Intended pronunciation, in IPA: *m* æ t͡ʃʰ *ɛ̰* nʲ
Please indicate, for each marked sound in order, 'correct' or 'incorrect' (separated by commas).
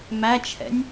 correct, correct